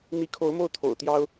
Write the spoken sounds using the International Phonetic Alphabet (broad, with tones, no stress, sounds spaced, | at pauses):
n̪ i˧˥ kʰ o˧˥ ʊ̯ m o˥˩ ʊ̯ t̪ʰ o̰˨˩ ʊ̯ t̪ j ɑ˥ ʊ̯